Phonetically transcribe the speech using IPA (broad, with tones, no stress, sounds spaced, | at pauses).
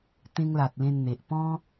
t̪ ẽ˧ ŋ l a˨ t̚ l ẽ˧ n n̪ e˨ ʔ p ɔ̃˦